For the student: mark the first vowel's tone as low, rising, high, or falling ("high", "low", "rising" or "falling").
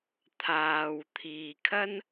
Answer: low